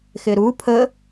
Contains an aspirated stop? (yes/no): yes